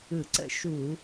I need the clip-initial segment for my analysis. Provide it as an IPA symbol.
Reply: ɯ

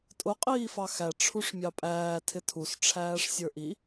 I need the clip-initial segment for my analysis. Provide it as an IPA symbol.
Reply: tʼ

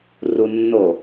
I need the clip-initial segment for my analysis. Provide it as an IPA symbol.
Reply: r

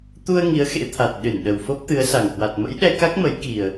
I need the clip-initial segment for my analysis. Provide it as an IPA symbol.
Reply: t̪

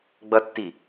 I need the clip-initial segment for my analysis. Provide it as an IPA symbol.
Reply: ɡ͡b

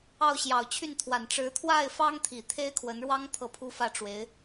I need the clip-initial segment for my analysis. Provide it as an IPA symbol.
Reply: ɑ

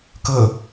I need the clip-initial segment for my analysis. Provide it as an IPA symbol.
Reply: k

